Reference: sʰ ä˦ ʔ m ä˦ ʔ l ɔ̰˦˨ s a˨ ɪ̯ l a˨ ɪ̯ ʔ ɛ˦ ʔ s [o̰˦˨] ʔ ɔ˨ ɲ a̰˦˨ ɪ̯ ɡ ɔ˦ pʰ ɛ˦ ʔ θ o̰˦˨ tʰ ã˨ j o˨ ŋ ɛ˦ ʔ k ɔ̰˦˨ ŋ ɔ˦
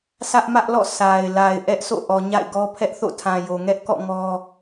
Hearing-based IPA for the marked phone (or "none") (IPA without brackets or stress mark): o̰˦˨